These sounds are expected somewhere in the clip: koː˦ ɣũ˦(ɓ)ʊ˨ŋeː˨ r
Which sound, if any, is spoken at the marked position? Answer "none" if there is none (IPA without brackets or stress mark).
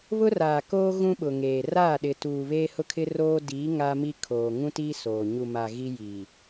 ɓ